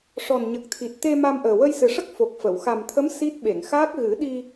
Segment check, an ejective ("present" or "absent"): absent